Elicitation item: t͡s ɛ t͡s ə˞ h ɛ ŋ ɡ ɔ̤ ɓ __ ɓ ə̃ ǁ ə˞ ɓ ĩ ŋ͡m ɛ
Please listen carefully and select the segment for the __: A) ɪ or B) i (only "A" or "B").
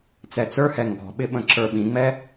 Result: A